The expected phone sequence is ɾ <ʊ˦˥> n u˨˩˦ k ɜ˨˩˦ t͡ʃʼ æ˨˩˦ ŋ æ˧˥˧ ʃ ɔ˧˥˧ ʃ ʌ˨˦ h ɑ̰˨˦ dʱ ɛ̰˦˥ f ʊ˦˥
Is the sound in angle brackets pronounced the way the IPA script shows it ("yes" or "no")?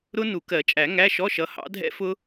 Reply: yes